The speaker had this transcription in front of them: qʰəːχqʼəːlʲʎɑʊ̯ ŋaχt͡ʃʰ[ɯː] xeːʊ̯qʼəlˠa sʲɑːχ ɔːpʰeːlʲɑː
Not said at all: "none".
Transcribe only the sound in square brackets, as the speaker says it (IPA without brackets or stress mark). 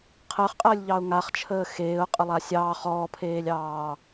əː